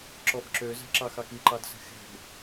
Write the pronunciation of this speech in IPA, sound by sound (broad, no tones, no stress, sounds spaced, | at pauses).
ǁ ɔ b ǁ ø z ɛ̤ ǁ ɑ x ɑ k i ǃ ɑ d s ɛ̤ x ɛ̤ b